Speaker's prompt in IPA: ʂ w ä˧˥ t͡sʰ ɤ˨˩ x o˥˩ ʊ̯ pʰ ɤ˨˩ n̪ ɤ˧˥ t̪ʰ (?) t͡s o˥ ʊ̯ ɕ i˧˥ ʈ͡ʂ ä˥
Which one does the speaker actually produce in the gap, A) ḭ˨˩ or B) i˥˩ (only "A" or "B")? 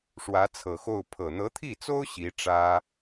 B